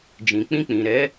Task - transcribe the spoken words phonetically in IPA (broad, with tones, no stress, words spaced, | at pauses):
d͡ʒĩ˨k͡pĩ˧k͡pĩ˨ɾɛ˨˦